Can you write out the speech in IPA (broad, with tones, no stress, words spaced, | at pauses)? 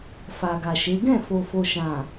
fa˨ɡa˨ʃe˨˦ ɡɛ̃˦˨fo˨fo˨ ʃã˨